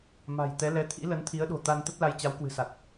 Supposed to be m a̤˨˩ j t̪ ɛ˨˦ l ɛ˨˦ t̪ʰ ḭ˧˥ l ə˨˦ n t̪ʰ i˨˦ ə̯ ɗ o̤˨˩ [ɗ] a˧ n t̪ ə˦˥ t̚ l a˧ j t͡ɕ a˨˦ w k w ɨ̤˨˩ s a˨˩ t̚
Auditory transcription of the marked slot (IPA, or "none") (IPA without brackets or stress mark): t̪